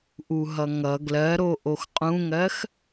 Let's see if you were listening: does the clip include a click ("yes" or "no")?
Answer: no